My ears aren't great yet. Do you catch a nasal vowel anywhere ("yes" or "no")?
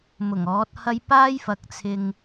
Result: no